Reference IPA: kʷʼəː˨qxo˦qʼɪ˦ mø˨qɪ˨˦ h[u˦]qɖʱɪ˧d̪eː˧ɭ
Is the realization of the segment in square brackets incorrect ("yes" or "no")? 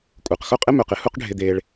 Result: no